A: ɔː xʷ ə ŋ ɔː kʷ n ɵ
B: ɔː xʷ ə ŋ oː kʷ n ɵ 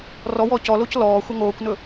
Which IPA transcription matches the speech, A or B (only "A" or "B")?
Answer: B